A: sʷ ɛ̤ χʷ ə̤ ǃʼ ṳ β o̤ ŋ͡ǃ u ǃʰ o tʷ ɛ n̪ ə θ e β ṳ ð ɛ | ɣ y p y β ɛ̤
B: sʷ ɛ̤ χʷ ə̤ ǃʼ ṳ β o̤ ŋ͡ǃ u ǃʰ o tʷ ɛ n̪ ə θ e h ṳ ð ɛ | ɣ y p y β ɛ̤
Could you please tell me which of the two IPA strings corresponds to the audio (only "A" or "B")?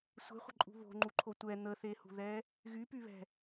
B